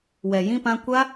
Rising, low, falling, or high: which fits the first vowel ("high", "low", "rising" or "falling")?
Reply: low